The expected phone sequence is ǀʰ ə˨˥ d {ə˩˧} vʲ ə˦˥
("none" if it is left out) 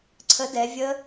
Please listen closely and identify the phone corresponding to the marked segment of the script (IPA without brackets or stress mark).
ɛ˩˧